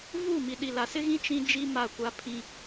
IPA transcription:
v uː˦˨ m i˨ ɗ i˨ l a˨ s ɪ˦ ɣ ĩ˦ t͡ʃ ĩ˦ d͡ʒ i˦ m a˦˨ kʷ a˦ pʰ ĩ˦

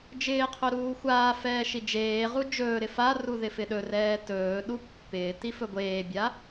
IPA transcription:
d͡ʒ ɪː qʰ ɵ ɾ uː xʷ aː f ɛː ʃ i d͡ʒ eː ʁ u d͡ʒ ɵː ɾ ɪ f a r u ð ɪ f ɪ ɗ ɵ r ɛː t ɵː ɗ u pː ɪː t i f ɵ ɡʷ eː bʲ a

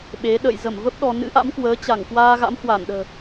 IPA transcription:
ɓ e˨˦ ɗ ə̰ː˧˨ j z ə˧˩ m v ə˦˥ p̚ ɗ ɔ˧ n ɨ̰˧˥ ʔ a̰˧˥ m k w əː˨˦ t͡ɕ a˧˩ ŋ k w aː˧ ɣ a̰˧˥ m h w a˧˩ n ɗ ə̤ː˨˩

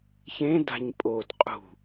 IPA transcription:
ç ẽ d a̤ ɲ pʼ o d qʼ ṳ

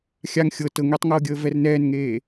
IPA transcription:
xʲ a ŋ xʲ ɤ t ɤ ŋ e tˤ ŋ ɤː ɡʲ əː v ɛ r n ɛː n ŋ eː

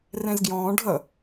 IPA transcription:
r ɛ̃ z ɡ j ɔ̃ː ɖʱ ʌ

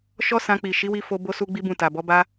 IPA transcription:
ʃ ɔ˦ s ã˧ k͡p i˨ ʃ i˨˦ w i˧ f o˧ b o˦ s u˦ ɡ͡b i˦ b ũ˦˨ t a˨ b ɔ˨˦ b a˦

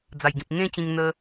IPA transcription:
d͡z a˨˩ j ɡ ĩ˨ p̚ ŋ ẽ˦ t͡ɕ ĩ˧ ŋ n̪ ə˧

